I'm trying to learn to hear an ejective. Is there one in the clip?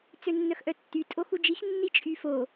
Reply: yes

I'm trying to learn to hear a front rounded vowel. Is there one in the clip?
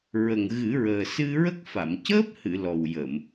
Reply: no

